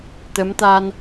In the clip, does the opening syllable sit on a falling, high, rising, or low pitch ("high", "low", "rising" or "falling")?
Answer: rising